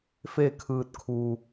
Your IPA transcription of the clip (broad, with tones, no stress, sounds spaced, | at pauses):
f e˥˨ kʰ ɯː˧ t̚ kʰ u˧